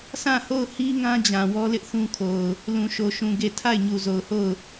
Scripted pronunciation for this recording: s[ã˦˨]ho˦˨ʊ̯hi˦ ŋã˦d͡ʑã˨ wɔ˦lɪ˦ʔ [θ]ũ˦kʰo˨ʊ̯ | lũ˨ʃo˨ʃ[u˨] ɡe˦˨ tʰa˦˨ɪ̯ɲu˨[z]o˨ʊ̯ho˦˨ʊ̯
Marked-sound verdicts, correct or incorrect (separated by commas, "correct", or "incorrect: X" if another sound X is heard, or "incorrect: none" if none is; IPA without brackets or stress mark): correct, correct, incorrect: ũ˨, correct